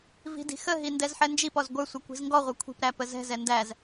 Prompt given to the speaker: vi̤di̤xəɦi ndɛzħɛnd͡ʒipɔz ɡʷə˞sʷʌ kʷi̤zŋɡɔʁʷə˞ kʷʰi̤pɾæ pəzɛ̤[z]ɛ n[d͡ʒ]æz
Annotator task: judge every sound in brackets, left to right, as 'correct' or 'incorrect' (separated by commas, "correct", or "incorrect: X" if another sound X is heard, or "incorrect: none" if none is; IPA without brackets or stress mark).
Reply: correct, incorrect: d